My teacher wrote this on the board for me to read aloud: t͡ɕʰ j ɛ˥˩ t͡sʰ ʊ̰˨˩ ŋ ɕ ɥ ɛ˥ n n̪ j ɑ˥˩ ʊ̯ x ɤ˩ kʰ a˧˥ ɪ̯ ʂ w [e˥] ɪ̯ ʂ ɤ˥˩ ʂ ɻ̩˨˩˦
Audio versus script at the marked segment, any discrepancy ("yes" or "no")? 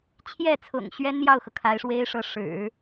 no